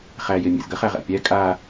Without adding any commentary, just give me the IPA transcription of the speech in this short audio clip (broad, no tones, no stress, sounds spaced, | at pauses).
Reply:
χ æ j e mʲ ḛ z ɡ ə χ æ ʁ æ̰ pʲ æ kʼ a